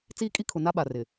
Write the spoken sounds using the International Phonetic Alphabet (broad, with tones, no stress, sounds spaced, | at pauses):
t͡s iː˦ kʼ i˦ kʰ ʊ˨ n a˦ ɓ a˨ r ɪ˨